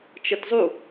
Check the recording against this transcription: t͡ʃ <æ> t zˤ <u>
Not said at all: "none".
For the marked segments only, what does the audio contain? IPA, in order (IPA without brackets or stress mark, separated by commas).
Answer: ə, u